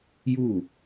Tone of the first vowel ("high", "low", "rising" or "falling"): falling